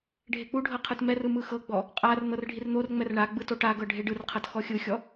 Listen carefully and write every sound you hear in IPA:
ɖʱ e k͡p u ɖʱ ɤ qʰ ɯ t m ɛ r ɯ m ɯ x ɤ ɡ͡b ɔ | qʼ a r n̪ ɤ r ɖʱ i r n̪ o r ŋ͡m ɛ r ɳ a ɡ͡b ɯ t o ʈ a ɡ ɤ ɖʱ e ɖ ɯ r qʰ ɤ t x ɔ xʲ ɯ xʲ ɔ

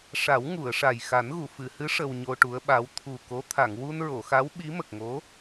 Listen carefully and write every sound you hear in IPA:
ʂ a˨˩˦ w ŋ u˨˩˨ ə̯ ʂ a˨˩ j x a˨˩˦ n ɣ u˨˩˨ f ɨ˨˩˨ h ɨ˧˥ ʂ ə˧ w ɲ o˧ ʈ u˧˥ ə̯ ɓ a˧˥ w t̪ʰ u˨˩ k o˧˥ t̪ʰ a˨˩˨ ŋ w u˧ n ɹ o˨˩˨ x a˧˥ w ɓ i˧˥ m ə˨˩ k̚ ŋ o˧˥

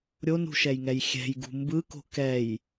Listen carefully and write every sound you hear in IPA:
ɾʲ o n ṳ ʃ ɛ j ŋ ɛ j xʲ ɛ̤ j ɡ ṳ m b ɯ k o̤ k ɛ j

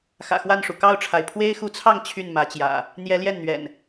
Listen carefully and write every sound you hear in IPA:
x ä̰˨˩ x w a˥˨ n ʂ u˩ k ɑ˥˨ ʊ̯ ʈ͡ʂʰ a˩ ɪ̯ pʰ w e˦ ɪ̯ x u˨˦ t͡sʰ ɑ˥˨ ŋ t͡ɕʰ y˥˨ n m ä˨˦ t͡ɕ j ä̰˨˩ | n̪ j ɛ˨˦ l j ɛ˥˨ n n̪ ɥ ɛ̰˨˩ n

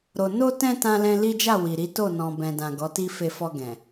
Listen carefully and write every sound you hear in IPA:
ɾ o˨ n o˧ t ɛ̃˧ t ã˦ l ɛ̃˦ l i˦ d͡ʒ a˦˨ w i˨ ɾ i˨˦ t o˦˨ n ɔ̃˨ b ɛ̃˨ d ã˨ ɡ ɔ˨˦ t i˦ f e˧ f ɔ˧ ɡ ɛ̃˨

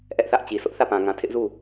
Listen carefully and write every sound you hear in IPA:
ʔ ɛ˦ ʔ θ ä˦ ʔ t͡ɕ i˨ s ʊ˦ ʔ θ ä˦˨ p ã˨ ŋ ã˨ tʰ ɪ˦ ʔ z u˦˨

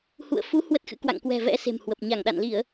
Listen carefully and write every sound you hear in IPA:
h ṵ˧˨ ə̯ f u˨˦ h w ə˦˥ t̚ x ɨ̰˧˥ k w a̰˧˨ ŋ k w ɛ̤˨˩ v ɛ̰˧˥ s e̤˨˩ m h w ə˨˩ p̚ ɲ a˧˩ ŋ ɗ a̰˧˨ n l i˧˩˨ ə̯

